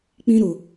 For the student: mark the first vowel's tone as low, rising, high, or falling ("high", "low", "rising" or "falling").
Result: low